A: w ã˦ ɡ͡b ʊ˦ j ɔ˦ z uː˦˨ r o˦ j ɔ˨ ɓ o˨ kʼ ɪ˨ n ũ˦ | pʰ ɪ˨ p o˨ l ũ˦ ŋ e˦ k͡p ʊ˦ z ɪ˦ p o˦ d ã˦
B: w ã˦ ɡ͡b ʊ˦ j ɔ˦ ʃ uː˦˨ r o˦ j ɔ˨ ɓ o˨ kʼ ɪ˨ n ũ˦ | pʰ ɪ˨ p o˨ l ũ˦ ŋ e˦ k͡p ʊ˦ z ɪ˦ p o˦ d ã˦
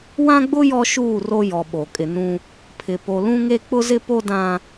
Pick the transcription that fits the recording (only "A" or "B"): B